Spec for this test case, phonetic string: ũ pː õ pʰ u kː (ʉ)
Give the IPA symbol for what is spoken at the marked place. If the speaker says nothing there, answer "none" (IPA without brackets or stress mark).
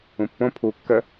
ə